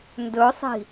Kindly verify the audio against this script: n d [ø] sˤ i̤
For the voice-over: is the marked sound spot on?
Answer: no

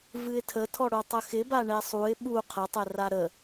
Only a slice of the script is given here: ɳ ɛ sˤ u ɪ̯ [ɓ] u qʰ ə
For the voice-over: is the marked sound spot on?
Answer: yes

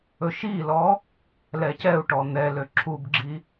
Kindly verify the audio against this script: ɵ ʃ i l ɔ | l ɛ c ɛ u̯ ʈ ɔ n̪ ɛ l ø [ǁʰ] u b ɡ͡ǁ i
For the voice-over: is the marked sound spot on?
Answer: yes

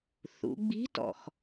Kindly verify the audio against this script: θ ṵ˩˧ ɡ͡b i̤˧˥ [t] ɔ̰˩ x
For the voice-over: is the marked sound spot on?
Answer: yes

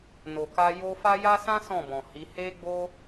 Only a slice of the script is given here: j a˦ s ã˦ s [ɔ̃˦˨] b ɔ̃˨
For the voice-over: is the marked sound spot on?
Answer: yes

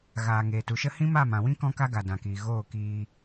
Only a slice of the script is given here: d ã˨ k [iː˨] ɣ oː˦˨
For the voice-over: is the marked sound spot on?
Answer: yes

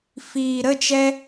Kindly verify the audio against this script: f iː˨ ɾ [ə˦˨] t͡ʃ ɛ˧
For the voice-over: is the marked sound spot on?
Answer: yes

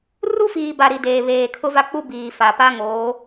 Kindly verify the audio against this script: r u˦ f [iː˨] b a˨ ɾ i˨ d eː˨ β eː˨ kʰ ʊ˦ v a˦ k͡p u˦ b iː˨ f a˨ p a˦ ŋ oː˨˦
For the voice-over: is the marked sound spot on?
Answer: yes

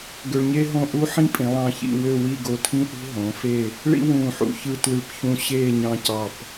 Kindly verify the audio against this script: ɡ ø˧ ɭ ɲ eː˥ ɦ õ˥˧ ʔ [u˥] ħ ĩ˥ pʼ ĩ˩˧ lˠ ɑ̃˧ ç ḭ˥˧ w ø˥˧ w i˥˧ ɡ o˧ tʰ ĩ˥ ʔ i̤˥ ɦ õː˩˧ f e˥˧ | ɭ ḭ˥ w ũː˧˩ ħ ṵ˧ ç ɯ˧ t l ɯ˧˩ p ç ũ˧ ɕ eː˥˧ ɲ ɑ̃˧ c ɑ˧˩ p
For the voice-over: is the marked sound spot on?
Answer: yes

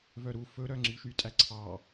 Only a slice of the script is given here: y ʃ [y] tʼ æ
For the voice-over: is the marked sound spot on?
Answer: yes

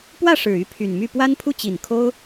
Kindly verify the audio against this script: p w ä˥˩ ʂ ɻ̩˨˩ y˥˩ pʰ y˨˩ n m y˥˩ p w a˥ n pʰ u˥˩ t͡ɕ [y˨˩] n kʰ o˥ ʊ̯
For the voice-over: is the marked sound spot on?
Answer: no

